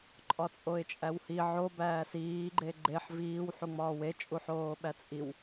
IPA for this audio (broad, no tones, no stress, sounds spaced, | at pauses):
ǃʼ ɒ t͡sʼ o ɪ̯ t͡ʃʼ æ w h i ʕ o b æː s iː ɡ͡ǃ e ɡ͡ǃ e ħ v iː w ħ u ŋ͡m ɒː w e t͡ʃʼ u ħ oː ɓ æ t͡sʼ i w